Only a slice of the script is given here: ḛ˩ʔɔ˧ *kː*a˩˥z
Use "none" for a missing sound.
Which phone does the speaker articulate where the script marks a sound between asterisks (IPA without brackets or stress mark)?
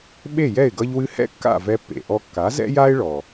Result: kː